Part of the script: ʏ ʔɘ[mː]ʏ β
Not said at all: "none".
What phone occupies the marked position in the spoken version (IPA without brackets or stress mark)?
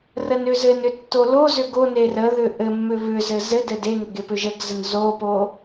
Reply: mː